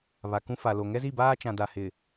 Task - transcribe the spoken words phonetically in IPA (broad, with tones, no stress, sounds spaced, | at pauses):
β a˨ k ũ˦ f a˨ l o˨ ŋ ɛ˦ z i˦˨ b aː˦ t͡ʃ ã˨ d a˨ h ɪ˨